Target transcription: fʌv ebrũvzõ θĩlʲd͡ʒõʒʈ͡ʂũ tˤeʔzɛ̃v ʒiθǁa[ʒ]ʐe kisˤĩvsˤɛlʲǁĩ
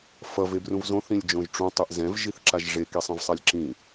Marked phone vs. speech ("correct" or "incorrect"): correct